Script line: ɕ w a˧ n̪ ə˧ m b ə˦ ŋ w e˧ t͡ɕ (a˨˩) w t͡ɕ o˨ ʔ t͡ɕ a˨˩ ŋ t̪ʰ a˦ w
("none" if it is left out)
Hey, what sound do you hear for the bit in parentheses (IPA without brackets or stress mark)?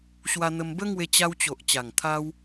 a˧